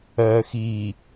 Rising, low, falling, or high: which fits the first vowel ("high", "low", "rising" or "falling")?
low